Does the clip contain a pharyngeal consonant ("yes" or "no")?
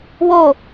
no